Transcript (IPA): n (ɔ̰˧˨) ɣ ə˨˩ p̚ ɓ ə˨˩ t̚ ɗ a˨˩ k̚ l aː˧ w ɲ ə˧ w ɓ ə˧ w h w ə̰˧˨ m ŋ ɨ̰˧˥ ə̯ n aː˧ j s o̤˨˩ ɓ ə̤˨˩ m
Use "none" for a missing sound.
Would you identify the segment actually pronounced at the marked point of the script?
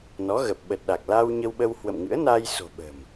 ɔ˨˦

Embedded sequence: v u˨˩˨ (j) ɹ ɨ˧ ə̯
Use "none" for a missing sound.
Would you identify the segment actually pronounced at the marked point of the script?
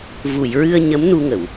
j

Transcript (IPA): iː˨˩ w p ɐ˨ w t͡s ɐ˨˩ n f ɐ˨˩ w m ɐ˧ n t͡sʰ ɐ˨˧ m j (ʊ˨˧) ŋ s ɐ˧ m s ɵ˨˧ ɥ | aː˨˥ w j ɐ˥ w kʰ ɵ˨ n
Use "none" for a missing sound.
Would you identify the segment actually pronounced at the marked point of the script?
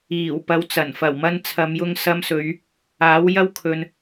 ʊ˧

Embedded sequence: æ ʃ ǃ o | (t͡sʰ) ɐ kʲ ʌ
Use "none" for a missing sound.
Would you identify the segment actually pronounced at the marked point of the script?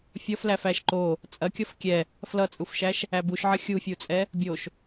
t͡sʼ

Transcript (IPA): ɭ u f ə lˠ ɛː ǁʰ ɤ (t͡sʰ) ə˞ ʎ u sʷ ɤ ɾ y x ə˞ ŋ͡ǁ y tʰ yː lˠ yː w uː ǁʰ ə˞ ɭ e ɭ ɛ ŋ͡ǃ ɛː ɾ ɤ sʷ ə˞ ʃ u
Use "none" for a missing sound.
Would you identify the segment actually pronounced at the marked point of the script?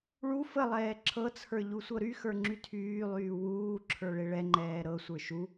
t͡sʰ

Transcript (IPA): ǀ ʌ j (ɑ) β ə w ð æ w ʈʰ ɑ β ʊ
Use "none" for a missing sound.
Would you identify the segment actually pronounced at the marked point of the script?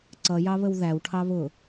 ɑ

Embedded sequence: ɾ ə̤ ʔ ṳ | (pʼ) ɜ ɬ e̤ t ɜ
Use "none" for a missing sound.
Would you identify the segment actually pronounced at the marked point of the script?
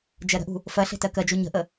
f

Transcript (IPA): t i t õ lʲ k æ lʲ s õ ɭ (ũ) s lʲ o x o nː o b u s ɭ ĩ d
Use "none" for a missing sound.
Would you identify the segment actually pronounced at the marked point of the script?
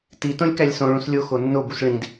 ũ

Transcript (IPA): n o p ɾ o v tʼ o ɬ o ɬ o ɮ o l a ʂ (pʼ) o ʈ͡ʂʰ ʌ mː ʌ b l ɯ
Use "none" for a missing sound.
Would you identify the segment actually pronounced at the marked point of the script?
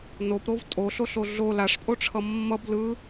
pʼ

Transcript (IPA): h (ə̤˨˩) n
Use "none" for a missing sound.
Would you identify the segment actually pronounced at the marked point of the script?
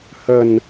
ə̤˨˩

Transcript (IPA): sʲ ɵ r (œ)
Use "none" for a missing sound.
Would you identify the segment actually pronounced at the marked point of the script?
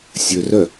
œ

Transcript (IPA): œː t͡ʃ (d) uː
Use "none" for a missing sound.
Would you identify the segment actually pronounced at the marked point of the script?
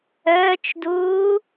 d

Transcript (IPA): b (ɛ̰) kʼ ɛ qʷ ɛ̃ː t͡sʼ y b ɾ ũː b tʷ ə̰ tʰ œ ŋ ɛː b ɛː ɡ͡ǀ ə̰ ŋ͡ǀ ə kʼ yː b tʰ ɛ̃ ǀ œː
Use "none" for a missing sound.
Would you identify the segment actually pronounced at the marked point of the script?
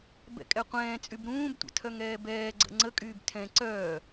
ɛ̰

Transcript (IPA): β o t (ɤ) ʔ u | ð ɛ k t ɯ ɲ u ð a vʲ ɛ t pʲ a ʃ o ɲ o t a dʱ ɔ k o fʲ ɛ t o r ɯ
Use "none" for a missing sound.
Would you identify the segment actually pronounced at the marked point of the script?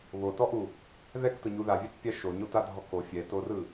ɔ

